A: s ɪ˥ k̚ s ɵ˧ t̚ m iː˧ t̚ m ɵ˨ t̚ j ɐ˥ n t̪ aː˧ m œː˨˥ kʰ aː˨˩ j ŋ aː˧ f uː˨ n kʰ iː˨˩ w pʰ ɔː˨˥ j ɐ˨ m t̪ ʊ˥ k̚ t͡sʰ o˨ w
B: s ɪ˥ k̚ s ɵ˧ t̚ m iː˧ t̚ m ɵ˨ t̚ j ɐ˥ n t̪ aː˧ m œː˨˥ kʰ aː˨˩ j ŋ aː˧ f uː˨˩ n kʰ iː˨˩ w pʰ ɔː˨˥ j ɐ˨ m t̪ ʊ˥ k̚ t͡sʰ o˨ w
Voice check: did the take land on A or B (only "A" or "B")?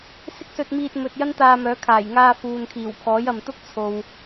A